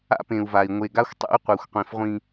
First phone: a̰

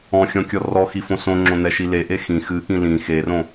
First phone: ɔ̃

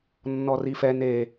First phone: nː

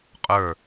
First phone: qʼ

